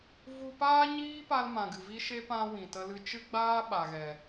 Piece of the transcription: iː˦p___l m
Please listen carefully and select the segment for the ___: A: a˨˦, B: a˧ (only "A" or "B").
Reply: B